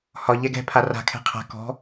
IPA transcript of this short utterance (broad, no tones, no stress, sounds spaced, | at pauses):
h ɒ ʎ ɛ ɡ ɛ̤ pʰ a r a̤ kʰ ɛ̤ qʰ a̤ k ɔ̤